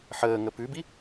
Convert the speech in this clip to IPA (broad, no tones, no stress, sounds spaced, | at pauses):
ħ əː ŋ ə p ʉ b i